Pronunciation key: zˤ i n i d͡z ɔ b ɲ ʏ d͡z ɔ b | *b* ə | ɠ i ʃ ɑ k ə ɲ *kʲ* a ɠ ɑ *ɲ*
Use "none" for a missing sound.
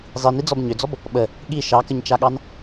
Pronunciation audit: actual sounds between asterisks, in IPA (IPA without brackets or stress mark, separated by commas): ɓ, t͡ʃ, n